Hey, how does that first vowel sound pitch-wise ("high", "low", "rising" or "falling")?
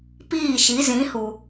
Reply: falling